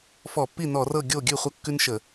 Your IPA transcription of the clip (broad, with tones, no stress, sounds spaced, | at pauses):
f ɔ˧˩˧ pː i˥˩ n ɔ˧˩˧ r ɤ˥˩ ɡʲ o˥˩ ɡʲ ʉ˥˩ χʷ ɐ˦ kː ʉ˦ n ʃ ə˧˩˧